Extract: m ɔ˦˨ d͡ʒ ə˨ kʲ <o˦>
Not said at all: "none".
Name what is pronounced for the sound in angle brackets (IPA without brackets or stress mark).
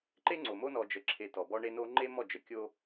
o˦